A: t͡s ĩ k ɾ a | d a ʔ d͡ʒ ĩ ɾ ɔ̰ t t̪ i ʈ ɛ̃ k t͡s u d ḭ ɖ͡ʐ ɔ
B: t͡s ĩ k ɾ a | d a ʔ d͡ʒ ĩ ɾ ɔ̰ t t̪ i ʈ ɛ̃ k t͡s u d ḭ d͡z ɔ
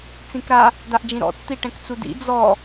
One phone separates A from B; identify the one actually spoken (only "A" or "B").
B